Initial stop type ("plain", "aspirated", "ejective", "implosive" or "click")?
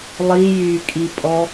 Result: ejective